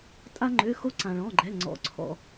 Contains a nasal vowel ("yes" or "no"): yes